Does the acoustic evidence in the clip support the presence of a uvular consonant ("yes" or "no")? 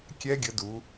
no